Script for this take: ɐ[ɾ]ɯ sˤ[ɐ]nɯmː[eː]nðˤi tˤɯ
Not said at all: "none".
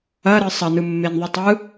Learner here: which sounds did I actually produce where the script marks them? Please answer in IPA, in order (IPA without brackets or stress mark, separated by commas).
ɾ, ɐ, e